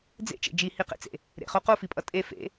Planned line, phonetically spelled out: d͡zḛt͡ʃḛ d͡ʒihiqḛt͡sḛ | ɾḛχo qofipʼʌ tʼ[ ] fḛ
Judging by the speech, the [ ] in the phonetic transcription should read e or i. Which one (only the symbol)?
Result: e